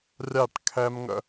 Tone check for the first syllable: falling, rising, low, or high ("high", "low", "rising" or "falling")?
falling